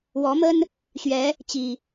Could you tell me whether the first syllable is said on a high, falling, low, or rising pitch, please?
rising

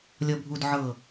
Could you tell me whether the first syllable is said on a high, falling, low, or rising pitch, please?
low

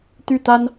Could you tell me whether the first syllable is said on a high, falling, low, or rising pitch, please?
falling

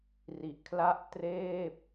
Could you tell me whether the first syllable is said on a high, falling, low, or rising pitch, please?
low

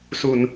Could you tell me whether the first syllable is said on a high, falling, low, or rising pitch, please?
low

